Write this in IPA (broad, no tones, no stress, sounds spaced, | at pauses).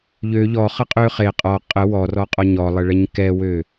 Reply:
ʎ ø ʎ ɔ χ ə qʼ ø χ e qʼ ɔ qʼ ə w ɔ r ɔ qʼ ɔ ɲ ɔ lˠ ə ɭ ɛ ɲ k ɛ w ø